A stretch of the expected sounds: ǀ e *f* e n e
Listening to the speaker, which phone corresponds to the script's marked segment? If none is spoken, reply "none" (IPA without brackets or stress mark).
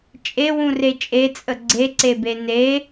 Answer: b